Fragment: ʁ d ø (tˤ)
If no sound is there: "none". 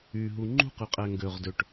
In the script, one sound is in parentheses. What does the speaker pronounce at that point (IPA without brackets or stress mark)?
ʈ